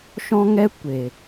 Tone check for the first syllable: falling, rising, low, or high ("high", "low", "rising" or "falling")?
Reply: high